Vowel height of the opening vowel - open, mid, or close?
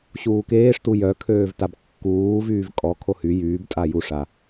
close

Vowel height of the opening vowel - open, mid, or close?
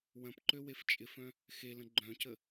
open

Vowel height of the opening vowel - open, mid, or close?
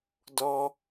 mid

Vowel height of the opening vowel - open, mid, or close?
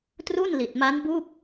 close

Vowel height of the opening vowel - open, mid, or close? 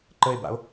mid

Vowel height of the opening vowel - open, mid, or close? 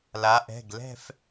open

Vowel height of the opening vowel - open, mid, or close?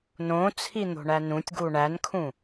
mid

